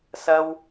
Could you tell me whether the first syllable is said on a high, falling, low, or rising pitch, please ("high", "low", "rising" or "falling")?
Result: high